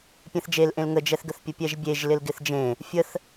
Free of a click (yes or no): yes